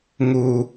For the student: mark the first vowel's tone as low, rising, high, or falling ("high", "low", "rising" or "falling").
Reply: low